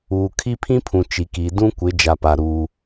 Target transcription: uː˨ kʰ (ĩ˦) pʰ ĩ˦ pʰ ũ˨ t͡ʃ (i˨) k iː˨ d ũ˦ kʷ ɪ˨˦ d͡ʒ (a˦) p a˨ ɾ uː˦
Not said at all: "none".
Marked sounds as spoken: i˦, i˨, a˨

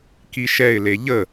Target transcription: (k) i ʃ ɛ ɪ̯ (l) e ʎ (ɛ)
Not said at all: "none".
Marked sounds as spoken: k, l, ə

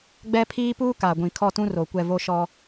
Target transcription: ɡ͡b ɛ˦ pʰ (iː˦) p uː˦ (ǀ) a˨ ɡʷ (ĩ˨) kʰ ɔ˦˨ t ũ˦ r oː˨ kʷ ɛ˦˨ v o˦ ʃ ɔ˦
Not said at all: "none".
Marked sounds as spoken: iː˦, k, ĩ˨

